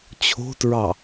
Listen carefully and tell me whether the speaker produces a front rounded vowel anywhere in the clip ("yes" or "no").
no